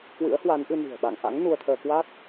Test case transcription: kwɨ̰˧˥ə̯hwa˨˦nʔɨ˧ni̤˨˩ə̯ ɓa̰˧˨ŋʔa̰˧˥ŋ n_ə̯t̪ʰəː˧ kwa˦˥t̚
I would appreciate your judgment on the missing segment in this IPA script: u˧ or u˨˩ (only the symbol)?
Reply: u˧